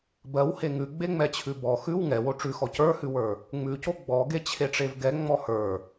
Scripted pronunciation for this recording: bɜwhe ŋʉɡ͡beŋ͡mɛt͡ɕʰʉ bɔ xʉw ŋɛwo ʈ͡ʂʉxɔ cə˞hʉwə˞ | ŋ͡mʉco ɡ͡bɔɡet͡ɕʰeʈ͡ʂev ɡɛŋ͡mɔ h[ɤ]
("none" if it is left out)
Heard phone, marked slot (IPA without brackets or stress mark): ə˞